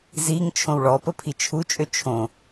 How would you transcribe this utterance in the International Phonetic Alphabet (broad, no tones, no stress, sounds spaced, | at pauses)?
z i ŋ t͡ʃʰ õ w ɭ ɔ p ə pʰ i t͡ʃʰ u t͡ʃʼ ø t͡ʃʰ õ